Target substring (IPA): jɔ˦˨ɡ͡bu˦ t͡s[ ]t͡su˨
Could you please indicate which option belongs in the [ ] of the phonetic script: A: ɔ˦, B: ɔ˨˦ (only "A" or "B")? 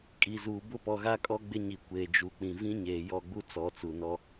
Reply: B